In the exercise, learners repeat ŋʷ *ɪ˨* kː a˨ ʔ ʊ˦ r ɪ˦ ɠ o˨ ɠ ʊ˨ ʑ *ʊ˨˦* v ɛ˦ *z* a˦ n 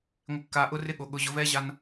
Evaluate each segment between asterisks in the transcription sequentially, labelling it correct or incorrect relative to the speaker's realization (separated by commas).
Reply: correct, correct, incorrect